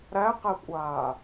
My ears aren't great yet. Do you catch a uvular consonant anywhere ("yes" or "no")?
yes